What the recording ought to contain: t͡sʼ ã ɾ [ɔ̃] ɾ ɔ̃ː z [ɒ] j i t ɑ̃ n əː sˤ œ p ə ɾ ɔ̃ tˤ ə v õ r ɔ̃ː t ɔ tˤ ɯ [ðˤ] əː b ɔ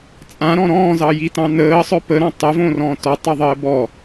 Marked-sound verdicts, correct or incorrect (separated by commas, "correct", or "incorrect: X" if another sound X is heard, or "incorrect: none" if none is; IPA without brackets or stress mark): correct, incorrect: ɑ, correct